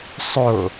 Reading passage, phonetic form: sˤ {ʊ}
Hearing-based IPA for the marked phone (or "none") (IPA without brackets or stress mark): ʊ